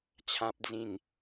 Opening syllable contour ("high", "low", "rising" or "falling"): low